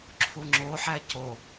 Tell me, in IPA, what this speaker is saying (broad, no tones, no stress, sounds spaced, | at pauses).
ǁʰ u ŋ͡ǁ o ħ æ c o